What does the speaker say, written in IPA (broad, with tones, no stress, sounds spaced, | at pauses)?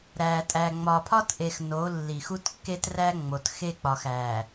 ɾ æ˨ tʼ æ˨ ŋ͡m ɒ˨ pʰ ɒ˦ t ʔ e˨ x n o˨˦ lː i˨ x u˦ t kː e˦ t r æ˦ ŋ͡m o˨ t x e˦ k͡p ɒ˨ x æ˨